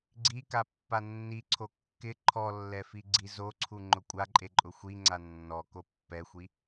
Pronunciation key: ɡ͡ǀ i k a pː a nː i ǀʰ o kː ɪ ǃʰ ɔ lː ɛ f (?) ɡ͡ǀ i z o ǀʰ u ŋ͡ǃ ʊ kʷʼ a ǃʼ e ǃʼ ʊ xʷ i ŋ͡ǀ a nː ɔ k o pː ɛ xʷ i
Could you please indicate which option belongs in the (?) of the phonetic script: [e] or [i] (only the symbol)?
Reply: i